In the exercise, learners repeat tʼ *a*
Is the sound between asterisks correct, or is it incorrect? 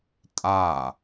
correct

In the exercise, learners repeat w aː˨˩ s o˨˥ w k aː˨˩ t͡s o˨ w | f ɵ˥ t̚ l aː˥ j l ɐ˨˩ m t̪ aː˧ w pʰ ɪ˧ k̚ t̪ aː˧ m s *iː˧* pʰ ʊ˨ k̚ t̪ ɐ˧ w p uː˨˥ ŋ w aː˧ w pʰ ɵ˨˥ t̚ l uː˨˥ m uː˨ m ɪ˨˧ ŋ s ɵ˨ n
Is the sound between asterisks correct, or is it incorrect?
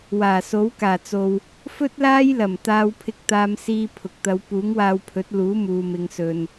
correct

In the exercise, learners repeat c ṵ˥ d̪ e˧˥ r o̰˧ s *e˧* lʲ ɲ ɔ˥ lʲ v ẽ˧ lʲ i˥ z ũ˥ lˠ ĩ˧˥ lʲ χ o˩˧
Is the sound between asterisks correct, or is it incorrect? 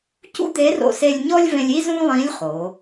correct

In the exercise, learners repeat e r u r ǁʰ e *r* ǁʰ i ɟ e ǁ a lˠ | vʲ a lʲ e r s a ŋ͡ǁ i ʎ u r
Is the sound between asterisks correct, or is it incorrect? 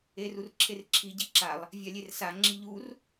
correct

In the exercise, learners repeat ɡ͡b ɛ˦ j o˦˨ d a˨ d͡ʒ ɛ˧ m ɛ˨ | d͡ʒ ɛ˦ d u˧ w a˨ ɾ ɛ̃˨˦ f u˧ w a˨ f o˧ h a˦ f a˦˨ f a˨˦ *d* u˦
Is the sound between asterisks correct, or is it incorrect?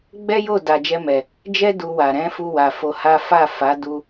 correct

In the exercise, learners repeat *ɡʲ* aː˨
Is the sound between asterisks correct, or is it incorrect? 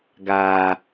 incorrect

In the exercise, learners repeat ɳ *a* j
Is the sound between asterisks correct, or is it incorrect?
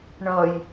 incorrect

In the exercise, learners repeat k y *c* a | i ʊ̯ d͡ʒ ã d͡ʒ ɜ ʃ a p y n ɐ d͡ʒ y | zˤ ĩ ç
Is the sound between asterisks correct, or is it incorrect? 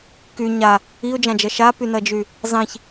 incorrect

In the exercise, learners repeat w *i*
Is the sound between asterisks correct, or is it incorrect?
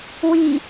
correct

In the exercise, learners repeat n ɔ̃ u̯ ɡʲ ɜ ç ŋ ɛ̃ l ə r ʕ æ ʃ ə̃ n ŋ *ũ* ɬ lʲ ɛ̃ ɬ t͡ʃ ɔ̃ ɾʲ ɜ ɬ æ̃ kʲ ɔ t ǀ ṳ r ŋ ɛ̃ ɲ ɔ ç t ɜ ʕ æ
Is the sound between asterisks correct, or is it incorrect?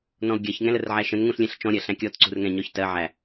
correct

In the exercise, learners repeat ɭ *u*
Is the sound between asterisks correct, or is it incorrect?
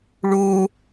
incorrect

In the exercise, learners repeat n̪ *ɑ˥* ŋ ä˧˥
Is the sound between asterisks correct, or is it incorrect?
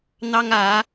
correct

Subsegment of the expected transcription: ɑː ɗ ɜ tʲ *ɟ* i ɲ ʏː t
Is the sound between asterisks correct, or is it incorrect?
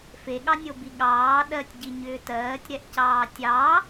correct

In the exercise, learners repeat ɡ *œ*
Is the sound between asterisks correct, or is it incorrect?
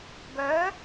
correct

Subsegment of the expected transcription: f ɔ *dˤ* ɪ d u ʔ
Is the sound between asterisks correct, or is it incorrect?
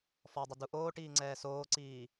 correct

